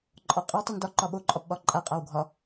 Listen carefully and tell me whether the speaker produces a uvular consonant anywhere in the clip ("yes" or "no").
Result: yes